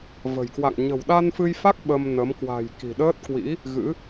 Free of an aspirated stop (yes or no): yes